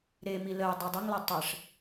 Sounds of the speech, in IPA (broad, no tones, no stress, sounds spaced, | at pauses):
ɾ e m i l ə j dˤ i dˤ ə ŋ l ɐ tˤ ə ʂ